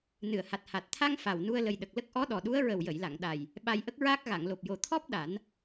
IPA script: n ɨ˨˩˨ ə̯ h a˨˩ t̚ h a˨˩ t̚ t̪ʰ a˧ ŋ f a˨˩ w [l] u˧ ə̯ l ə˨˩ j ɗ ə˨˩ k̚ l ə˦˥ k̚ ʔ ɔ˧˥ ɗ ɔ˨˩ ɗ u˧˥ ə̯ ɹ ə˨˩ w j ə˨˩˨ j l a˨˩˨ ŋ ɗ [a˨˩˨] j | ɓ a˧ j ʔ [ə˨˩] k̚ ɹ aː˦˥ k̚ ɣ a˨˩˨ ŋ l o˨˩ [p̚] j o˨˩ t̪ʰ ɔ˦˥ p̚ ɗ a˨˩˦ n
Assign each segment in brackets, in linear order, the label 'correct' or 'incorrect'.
incorrect, incorrect, incorrect, correct

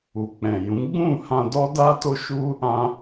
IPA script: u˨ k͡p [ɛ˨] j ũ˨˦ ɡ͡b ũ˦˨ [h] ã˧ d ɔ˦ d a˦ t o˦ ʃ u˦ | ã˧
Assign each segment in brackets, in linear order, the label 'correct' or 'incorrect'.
incorrect, correct

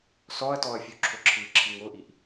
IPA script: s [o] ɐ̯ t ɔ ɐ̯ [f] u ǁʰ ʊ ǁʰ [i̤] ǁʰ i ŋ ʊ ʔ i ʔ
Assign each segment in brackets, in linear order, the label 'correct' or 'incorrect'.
incorrect, incorrect, incorrect

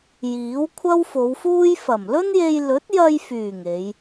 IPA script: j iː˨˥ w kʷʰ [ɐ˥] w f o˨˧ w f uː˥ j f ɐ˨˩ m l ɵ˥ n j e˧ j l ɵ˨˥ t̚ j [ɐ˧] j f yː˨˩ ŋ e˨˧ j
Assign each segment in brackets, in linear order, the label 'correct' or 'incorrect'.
correct, correct

